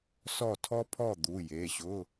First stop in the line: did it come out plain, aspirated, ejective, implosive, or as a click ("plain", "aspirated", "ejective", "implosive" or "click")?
aspirated